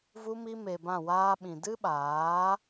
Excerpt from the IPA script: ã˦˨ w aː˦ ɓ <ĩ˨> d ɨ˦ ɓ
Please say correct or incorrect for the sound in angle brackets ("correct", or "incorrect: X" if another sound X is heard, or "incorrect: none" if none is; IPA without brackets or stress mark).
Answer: correct